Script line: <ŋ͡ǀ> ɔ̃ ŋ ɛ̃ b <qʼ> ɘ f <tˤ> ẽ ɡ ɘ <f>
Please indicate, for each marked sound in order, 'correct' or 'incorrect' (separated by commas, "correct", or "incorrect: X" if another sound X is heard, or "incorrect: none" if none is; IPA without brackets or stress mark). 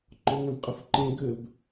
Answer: incorrect: ŋ͡ǃ, correct, incorrect: ǃ, incorrect: b